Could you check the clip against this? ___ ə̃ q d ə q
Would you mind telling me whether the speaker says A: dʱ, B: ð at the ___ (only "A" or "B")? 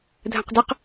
A